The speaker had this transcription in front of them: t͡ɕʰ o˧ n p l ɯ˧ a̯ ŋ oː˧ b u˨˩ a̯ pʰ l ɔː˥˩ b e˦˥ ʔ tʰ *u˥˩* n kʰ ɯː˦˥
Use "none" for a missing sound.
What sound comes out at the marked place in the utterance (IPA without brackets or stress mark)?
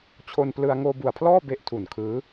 u˨˩